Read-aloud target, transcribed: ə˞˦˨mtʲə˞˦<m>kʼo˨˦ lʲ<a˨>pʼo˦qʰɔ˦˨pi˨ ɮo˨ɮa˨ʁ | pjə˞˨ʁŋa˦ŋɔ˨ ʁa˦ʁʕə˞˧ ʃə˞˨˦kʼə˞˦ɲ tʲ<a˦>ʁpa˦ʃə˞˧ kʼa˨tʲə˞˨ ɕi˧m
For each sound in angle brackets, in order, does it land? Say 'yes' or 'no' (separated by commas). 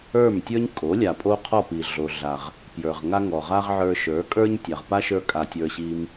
no, yes, no